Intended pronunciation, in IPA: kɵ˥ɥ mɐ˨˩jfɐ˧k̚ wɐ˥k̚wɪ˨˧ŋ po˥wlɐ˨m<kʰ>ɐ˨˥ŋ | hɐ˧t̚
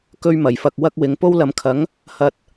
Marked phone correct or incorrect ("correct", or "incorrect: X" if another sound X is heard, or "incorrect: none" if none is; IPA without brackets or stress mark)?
correct